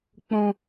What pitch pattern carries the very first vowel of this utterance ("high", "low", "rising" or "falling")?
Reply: high